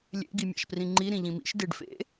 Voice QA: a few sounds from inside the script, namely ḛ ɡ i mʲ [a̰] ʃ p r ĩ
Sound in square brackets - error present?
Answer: no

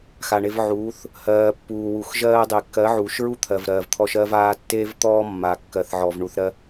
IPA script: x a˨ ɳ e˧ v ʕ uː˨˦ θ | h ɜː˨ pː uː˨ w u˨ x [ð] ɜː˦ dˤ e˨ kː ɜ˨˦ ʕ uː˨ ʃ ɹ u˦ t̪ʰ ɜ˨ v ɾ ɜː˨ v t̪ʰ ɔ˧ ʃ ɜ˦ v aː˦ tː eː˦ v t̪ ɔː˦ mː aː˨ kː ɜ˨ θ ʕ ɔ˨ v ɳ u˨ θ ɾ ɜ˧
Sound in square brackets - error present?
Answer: yes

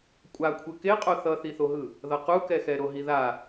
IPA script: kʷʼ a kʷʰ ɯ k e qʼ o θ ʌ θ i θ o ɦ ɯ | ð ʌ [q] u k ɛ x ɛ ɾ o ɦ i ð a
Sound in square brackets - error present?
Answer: no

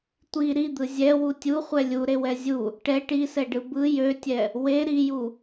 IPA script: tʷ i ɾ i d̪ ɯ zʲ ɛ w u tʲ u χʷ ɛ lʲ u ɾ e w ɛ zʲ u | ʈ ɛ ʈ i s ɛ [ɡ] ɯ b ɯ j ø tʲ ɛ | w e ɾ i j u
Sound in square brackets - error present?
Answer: yes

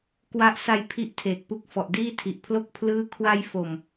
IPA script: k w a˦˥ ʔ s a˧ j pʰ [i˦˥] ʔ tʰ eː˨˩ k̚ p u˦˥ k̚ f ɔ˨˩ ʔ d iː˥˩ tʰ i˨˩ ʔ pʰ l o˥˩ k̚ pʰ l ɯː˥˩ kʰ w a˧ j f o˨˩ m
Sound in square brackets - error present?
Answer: no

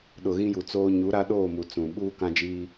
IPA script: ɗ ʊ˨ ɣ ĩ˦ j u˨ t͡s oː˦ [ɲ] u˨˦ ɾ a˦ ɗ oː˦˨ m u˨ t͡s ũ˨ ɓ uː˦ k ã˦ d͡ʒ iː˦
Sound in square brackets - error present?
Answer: no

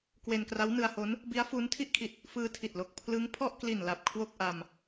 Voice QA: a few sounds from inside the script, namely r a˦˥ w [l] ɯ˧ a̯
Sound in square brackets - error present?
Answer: yes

